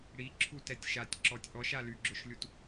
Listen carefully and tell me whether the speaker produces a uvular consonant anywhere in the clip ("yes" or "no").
no